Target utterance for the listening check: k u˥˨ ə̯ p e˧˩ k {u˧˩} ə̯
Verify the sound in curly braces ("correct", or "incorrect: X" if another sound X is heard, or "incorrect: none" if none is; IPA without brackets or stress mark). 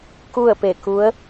incorrect: u˧˥